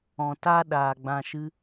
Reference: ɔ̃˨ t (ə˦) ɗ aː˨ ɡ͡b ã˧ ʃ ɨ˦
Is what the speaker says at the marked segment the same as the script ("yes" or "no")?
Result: no